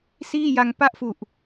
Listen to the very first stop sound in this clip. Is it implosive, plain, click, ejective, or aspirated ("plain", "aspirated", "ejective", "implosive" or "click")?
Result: plain